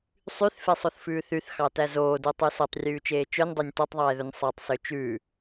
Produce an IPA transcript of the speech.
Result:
sˤyθfesˤoθfʉː θyθxɑtæ zoːdutˤy sotˤrʲʉːt͡ʃeː t͡ʃœnʲdˤønʲ totˤðˤeːðɵnʲ sˤætˤsø t͡ʃʉː

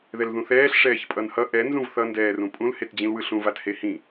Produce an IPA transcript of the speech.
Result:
ðɛlðũθɛːɬ ʂɛːçpʼʌnhʌ ʔɛ nzũvθʌ ndɛːrũpʼũl hetd͡ʑĩlwɯɬũ vathehĩ

